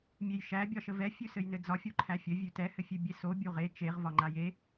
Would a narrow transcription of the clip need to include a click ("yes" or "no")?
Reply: yes